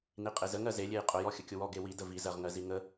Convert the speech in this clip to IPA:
n i qʼ e z ə ŋ ɜ z e lʲ e j qʼ ʊ j ɔ xʲ ə kʲ ʊ w ɔ ɡ e w i d ə v i z ɜ ʁ ŋ ɜ z i ŋ ə

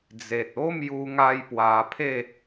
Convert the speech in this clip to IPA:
d͡z e˨ t̚ o˦ m j u˧ ŋ a˧ j p w a˧ pʰ e˥˧

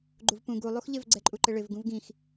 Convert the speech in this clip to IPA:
ɡ͡ǃ u v p ũ ɡ u lˠ u x ʎ ɪ v ɡ͡ǀ ɛ ǃʼ u ǃ ɪ ɭ ɪ v ɡ ũ v ɡ ĩ x

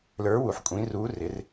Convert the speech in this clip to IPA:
l ə˞˩˥ w u˨˩ ħ kʷʼ ĩ˩˥ r u˩˥ r ɪ˩˥ r

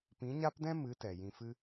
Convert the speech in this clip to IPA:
p ĩ˨˦ ɲ a˦ p d ɛ̃˦ m ɨ˨˦ t ɛ˨ j ĩ˧ f ɨ˦

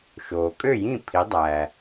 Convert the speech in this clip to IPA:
ʃ oː˩ kʼ ø˥˨ j ĩ˥˨ pʰ i˩˥ dˤ æ˩

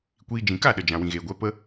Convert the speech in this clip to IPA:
kʷ iː˧ d͡ʒ ĩ˨ k a˦˨ ɗ ə˨ d͡ʒ ã˨ w ĩ˨ ɣ eː˨ ɡʷ ɛ˨˦ p ə˦

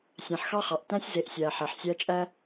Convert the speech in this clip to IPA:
sʲ æ̃˨ ħ x ɑ˦ χ ɑ˨ ʔ t æ̃˦ sʲ z e˨˦ ʔ sʲ æ˨ ħ æ˨ ħ sʲ æ˦ t͡ʃʼ æ˦

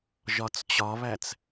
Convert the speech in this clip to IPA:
ʒ ɒ t͡s t͡ɕ ɒ β æ t͡s

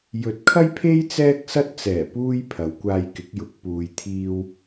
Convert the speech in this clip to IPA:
j ɵ˨˥ t̚ kʰ ɐ˥ j pʰ e˥ j t͡s ɛː˥ k̚ s ɐ˥ t̚ t͡s ɛː˨˩ p uː˥ j pʰ ɐ˨˧ w kʷ aː˧ j k ɪ˨˥ k̚ j ʊ˨˥ k̚ p uː˨ j t̪ʰ iː˧ w

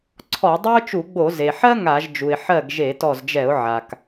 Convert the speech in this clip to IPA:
ǀʰ ɔ˧˩˧ dˤ ɛ˥ ʊ̯ t͡ʃ u˧˩˧ ɡ͡b o˧˩˧ z e˩ ħ ɜ˥ ŋ a˧˩˧ ʒ d͡ʒ u˩ ɪ̯ ħ ɜ˥˩ ɡ ʒ e˧˩˧ t ɔ˧˩ z d͡ʒ ɛ˧˩˧ ʊ̯ ʕ a˩ k

